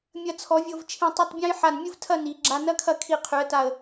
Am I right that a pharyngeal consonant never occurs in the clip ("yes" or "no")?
no